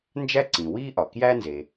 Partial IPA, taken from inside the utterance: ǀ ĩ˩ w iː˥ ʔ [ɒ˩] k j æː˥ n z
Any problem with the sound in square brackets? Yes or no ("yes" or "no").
no